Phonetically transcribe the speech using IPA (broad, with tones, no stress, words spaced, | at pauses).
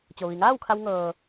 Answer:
t͡ɕo˩ʋi˩ŋaː˥˨wkʰa˧w ŋɤː˩